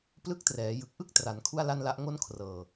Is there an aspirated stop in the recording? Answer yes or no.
yes